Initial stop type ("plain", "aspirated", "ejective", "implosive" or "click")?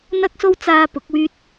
plain